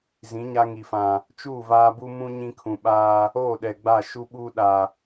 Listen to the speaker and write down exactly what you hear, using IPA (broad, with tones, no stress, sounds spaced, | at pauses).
z ĩ˨˦ ɲ a˦ ŋ i˨ f ã˨ | t͡ʃ uː˦˨ v aː˦ b u˦ m ũ˦ ɲ ĩ˦ kʰ ũ˨ ɓ aː˦ | oː˦˨ ɗ ɛ˨ ɡ͡b a˦˨ ʃ u˦ ɓ uː˦ ɗ a˨